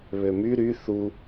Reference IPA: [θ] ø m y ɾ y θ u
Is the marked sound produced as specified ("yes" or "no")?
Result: no